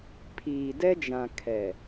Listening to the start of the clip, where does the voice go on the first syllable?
low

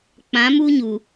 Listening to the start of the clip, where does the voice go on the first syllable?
rising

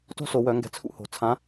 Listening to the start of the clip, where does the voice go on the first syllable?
high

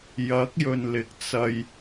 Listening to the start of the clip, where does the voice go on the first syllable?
rising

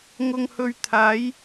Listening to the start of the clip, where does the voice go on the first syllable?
low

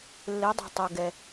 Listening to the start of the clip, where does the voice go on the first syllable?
rising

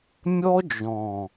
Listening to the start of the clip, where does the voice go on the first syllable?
high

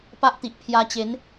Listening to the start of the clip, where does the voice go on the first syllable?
high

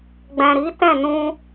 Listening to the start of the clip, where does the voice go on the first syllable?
low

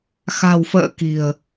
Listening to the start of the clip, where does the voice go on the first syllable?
low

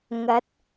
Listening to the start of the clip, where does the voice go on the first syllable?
rising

